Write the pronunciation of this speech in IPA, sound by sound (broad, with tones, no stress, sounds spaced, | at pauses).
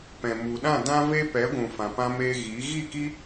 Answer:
p ɛ̃˨ m u˨ ɗ ã˦˨ d ã˦ v e˦ p ɛ˨˦ ɡʷ ũ˨ f ã˨ p ã˧ m eː˧ ɣ iː˨˦ ɣ i˦˨ k i˦